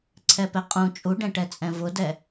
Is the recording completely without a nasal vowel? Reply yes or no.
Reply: no